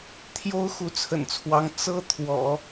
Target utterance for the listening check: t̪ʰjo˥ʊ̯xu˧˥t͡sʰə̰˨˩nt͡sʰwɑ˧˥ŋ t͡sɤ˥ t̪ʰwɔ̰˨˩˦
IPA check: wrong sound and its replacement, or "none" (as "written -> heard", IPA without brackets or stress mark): none